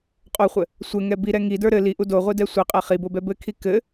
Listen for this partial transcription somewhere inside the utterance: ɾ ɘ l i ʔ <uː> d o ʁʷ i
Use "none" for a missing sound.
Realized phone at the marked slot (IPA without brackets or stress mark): u